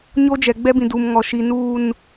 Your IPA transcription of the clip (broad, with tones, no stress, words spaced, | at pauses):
ɲo˦d͡ʒɛ˨ ɡ͡bɛ˦bĩ˨ duː˨mŋɔ˨ ʃi˨nuː˦˨n